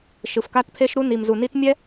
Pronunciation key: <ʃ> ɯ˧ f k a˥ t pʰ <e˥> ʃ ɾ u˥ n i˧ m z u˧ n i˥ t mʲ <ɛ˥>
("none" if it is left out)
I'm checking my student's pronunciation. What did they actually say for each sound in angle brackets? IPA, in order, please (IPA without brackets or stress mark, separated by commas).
ʃ, e˥, ɛ˥